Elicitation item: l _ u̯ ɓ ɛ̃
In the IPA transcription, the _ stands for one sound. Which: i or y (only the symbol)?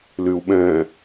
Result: y